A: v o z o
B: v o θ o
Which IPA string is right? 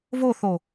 B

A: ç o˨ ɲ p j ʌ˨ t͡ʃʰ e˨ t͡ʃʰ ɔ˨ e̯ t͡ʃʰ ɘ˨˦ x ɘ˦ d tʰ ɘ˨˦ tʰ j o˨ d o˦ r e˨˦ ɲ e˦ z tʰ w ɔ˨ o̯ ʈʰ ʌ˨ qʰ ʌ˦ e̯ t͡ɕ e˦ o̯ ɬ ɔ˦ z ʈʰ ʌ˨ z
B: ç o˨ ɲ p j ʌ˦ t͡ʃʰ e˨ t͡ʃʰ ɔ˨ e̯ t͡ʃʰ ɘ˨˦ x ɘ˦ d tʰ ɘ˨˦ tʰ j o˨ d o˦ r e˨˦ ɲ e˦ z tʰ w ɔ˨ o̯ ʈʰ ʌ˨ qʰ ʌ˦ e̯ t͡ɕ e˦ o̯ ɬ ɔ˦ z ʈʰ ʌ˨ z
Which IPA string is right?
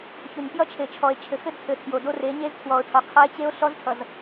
B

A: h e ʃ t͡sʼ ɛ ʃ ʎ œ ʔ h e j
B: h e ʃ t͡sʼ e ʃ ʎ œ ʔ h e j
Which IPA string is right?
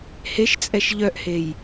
A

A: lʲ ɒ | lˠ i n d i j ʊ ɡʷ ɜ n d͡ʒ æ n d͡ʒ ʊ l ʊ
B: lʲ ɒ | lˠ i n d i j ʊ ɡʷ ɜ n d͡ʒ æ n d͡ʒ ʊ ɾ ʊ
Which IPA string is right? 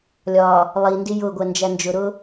B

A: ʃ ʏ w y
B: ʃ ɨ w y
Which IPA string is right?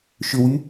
A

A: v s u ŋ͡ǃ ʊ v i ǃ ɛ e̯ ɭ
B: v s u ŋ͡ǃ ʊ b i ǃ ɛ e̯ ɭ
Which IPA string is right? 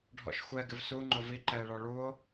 A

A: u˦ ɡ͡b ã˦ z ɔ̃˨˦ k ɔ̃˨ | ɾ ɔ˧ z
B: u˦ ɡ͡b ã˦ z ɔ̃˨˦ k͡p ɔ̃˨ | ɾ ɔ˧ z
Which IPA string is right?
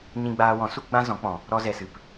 B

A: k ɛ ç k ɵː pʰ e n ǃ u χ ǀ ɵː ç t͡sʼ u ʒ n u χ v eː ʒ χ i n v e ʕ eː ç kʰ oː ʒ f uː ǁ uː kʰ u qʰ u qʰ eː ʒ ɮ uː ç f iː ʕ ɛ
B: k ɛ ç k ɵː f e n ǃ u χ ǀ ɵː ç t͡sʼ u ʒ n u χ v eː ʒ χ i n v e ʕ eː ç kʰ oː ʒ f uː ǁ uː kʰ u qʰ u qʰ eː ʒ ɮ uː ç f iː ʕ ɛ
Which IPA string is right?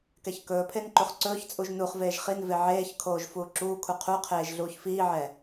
A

